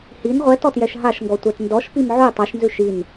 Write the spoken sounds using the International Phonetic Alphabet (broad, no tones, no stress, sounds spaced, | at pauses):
h i n ʁʷ ɛ t ɔ t j ɛ ʃ ɦ a ʃ ŋ ɡ ɔ tʷ ɛ t n d ɔ ʃ p i m ʕ ʉ tˤ a ʃ n z ʉ ʃ i n